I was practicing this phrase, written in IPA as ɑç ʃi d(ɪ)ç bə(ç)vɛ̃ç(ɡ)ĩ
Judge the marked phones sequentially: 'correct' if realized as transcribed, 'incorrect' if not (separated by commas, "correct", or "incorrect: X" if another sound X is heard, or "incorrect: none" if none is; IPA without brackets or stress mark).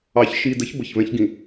incorrect: ə, correct, correct